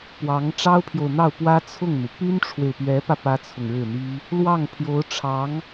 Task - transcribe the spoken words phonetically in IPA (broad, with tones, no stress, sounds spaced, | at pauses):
p w ɑ˧˥ ŋ ʈ͡ʂ ɑ˥ ʊ̯ pʰ j o˨ ʊ̯ n̪ ɑ˥˩ ʊ̯ p w ä˥ t͡sʰ ʊ˥˩ ŋ n̪ u˩ p y˥ n ʈ͡ʂʰ w e˨ ɪ̯ p ɥ ɛ˧˥ p ä˧ p ä˥ t͡sʰ ʊ˨ ŋ ɻ ɻ̩˥˩ n̪ i˥ | l w ɑ˥˩ ŋ pʰ j o˧˥ ʊ̯ ʈ͡ʂʰ ɑ˧˥ ŋ